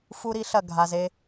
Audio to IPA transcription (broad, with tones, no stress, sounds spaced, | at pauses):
f u˦ ɾ i˦ ɬ ɐ˦˨ ɡʱ a˨ z e˦